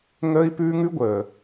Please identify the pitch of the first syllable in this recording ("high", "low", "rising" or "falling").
high